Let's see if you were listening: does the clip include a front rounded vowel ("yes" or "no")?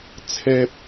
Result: no